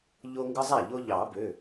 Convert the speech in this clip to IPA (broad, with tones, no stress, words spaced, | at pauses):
ʎo˦ŋɡɯ˦zˤæ˥˩ʎo˦ ʎɑ˨˩˦bø˩˧˩